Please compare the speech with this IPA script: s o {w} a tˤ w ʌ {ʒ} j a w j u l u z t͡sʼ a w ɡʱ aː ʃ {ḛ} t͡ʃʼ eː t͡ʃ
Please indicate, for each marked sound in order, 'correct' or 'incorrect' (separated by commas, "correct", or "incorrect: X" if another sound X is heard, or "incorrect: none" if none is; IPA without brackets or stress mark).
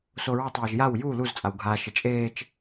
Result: incorrect: ɹ, correct, incorrect: e